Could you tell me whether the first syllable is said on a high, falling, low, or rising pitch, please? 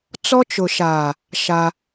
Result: high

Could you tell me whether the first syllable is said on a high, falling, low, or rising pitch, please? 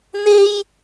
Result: high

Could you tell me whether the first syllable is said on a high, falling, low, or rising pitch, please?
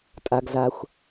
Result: low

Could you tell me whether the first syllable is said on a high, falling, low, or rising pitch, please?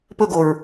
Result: falling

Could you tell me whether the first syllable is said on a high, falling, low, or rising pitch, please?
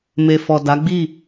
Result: low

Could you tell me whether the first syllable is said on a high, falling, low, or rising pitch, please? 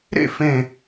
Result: falling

